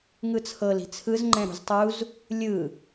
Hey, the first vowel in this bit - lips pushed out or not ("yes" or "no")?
no